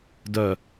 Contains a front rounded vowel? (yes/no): yes